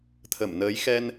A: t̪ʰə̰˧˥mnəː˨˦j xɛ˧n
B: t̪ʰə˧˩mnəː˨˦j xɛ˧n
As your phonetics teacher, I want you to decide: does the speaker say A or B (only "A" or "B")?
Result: B